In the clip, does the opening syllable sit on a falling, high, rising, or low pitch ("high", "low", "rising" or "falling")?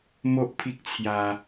high